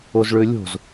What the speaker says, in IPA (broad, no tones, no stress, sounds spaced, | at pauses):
o z ɭ ø lʲ o̤ z